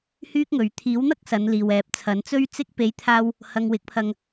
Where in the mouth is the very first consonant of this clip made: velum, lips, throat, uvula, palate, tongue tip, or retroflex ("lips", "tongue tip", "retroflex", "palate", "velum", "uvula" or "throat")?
throat